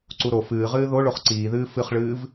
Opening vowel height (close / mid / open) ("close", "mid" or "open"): close